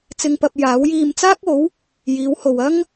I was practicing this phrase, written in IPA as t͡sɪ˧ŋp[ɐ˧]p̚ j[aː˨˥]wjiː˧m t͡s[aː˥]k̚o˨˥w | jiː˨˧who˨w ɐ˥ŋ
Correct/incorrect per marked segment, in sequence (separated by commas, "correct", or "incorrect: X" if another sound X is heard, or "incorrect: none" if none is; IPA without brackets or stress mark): correct, correct, correct